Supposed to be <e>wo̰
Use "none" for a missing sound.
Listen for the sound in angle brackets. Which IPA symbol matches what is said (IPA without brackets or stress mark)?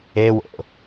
e